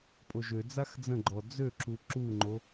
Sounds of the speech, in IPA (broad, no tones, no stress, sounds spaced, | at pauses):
pʼ o ʒ ø d͡z a x d͡z ə̃ ɡ͡ǃ ɔ d͡z ø ǁ u ǁ u ŋ͡ǃ o